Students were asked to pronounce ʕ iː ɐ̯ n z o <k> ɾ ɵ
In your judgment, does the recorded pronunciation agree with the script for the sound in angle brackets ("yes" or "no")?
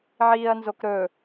yes